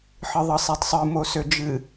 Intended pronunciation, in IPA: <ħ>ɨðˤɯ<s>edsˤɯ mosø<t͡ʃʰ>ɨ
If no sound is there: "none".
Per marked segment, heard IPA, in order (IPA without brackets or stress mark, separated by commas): ħ, sˤ, d͡ʒ